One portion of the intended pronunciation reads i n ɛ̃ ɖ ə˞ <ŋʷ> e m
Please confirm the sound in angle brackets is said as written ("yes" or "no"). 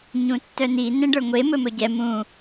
yes